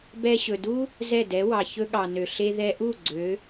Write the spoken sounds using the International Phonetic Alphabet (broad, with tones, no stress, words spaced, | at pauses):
bɛ˧ɕɵ˩du˥ | zɛ˥˩dɛ˩˥wɑ˩ çɵ˧ɠɑ˩nø˩ ɬe˧ðɛ˧ʔu˥˩ ɡ͡ǀø˩˥